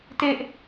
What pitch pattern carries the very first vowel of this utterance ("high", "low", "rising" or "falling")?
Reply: high